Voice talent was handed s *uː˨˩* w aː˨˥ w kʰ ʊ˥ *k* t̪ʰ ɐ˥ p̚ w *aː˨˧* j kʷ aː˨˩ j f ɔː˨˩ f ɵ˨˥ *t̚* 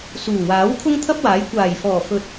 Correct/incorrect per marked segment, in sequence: correct, incorrect: ŋ, incorrect: aː˨˥, correct

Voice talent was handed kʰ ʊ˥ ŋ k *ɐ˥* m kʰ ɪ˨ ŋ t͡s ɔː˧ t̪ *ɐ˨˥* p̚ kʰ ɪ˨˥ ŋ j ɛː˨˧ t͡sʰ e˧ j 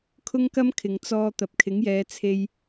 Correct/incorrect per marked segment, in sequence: correct, incorrect: ɐ˨

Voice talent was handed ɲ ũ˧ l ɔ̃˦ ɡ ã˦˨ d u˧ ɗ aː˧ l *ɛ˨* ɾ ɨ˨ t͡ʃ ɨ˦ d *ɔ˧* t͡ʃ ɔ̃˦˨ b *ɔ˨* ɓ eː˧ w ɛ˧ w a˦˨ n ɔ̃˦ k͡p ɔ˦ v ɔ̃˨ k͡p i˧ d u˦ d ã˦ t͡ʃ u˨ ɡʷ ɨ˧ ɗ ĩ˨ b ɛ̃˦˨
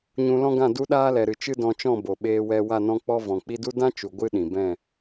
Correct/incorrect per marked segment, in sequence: correct, incorrect: ɔ̃˧, incorrect: o˨

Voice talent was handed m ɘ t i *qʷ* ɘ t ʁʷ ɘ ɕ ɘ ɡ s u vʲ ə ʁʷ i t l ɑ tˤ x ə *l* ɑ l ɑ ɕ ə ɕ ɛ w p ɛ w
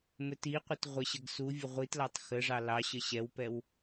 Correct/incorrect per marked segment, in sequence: correct, incorrect: ʐ

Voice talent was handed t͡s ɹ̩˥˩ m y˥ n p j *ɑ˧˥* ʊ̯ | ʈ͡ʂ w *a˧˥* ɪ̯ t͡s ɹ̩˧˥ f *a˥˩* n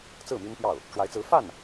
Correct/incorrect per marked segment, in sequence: incorrect: ɑ˥˩, correct, correct

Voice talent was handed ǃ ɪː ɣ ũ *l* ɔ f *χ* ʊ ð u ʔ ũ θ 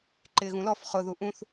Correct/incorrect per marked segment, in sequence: correct, correct

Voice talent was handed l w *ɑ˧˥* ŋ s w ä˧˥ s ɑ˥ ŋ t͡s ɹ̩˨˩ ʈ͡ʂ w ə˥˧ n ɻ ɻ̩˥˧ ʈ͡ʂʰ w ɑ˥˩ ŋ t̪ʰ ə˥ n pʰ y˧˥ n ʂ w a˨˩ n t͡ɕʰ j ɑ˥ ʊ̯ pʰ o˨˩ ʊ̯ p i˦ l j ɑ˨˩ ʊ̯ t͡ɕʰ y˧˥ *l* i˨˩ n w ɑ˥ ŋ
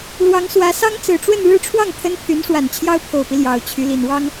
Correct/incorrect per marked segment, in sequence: correct, correct

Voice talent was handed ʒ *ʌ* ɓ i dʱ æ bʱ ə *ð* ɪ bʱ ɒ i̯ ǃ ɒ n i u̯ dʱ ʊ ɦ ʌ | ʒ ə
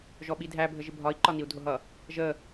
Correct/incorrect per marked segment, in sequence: incorrect: ɔ, incorrect: ʒ

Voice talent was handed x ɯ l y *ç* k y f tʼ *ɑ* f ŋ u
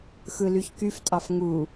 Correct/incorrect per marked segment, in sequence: correct, correct

